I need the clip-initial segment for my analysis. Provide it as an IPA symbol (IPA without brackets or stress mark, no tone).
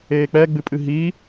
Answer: eː